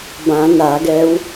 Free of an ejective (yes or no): yes